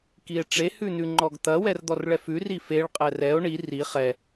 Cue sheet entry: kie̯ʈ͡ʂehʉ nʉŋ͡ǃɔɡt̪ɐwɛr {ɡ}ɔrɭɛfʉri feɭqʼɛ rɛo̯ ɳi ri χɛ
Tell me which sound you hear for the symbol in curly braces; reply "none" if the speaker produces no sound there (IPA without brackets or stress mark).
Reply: d̪